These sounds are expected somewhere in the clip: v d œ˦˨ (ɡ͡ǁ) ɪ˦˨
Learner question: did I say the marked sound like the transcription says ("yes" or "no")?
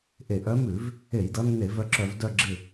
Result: yes